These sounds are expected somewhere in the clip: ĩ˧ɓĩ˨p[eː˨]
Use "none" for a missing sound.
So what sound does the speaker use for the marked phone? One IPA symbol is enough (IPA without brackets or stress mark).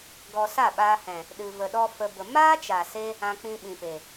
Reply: e˨